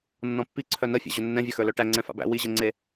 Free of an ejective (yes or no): yes